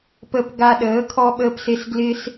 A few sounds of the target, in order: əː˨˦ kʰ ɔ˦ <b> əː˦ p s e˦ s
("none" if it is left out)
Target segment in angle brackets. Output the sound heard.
ɓ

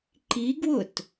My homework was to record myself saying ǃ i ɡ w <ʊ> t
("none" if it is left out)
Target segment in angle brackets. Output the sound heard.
ʊ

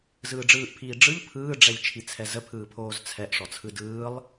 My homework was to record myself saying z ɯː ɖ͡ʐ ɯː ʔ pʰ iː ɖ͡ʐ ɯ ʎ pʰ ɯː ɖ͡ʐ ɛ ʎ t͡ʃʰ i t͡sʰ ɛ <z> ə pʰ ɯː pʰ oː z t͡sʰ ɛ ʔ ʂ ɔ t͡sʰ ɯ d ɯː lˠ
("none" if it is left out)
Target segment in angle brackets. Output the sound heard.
z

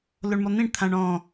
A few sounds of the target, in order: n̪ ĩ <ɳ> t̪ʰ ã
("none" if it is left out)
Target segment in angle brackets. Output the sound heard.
ɳ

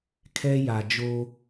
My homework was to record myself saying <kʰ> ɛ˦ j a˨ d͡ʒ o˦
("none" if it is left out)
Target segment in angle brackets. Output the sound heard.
kʰ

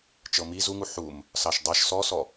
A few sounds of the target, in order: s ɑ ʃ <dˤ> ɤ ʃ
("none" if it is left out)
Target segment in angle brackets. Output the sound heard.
dˤ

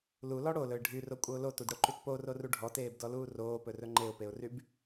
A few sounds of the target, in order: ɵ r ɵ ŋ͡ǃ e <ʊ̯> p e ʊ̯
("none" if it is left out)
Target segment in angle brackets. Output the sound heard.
ʊ̯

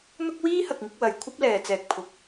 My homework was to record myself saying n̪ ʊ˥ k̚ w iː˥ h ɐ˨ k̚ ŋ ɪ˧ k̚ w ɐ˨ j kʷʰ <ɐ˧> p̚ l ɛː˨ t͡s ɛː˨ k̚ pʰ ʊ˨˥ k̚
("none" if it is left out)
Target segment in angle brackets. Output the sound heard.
ɐ˥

